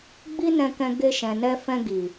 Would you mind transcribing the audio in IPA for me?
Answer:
ɡ͡bi˦nɛ̃˧kɛ̃˧ ɡe˧ʃɛ̃˨nɛ˧fɛ̃˧ ɡi˨

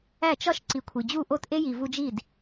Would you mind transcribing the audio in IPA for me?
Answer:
æ˥˩t͡ʃɒ˥ʃ ǀi˩˥kʷʰi˩d͡ʑu˥˩ʔo˥˩t ʔe˥ji˩ vu˧d͡ʒi˥˩d

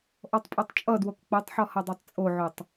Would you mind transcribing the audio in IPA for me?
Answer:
ʔɔtˤpʼotˤt͡ʃʼʌdwok k͡pʌtˤħɔ hʌdˤetˤt͡sʼoʕotˤ

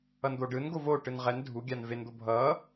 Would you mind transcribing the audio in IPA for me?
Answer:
ʌnd̪oɖɯnɡo voʈɯn ʁɛn dʱuɡʲan vend̪o bʱʌ

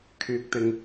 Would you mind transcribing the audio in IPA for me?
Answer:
kʰyː˨k̚t̪ɪ˨ŋ

